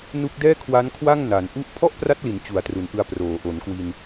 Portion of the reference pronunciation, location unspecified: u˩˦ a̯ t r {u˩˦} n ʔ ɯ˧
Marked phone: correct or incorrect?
correct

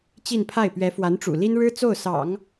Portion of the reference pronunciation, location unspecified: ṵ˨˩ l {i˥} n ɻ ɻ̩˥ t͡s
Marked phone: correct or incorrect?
correct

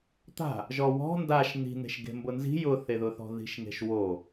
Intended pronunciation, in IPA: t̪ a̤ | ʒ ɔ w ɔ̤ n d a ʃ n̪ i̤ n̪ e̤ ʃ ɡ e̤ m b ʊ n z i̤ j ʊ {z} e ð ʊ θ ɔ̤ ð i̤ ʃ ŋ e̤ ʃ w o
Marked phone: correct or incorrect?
incorrect: θ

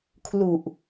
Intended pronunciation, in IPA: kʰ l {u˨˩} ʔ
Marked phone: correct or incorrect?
correct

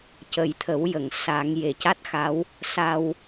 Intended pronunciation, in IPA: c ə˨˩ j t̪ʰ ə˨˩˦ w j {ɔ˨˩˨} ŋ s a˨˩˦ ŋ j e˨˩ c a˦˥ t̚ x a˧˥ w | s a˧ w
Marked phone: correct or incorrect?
incorrect: ə˨˩˨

